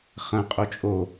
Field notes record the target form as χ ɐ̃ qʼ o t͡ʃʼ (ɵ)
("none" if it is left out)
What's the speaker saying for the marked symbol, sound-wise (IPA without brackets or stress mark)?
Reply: o